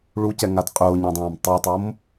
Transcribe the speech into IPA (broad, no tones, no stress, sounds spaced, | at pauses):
ɭ u c ɛ ŋ a d qʼ ʊː ɲ ã dˤ ãː m tˤ i tˤ o m